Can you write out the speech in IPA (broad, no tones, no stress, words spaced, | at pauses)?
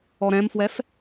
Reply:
ɔɾɛ̃mfwɛf